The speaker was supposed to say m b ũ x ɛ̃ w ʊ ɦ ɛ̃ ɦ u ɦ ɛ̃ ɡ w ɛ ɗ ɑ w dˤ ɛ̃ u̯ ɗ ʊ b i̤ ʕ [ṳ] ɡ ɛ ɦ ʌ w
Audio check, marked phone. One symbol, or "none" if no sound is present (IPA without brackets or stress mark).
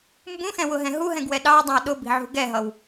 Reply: ṳ